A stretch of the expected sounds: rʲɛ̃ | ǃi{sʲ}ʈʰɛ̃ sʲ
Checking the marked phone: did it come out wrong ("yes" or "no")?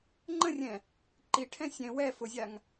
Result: yes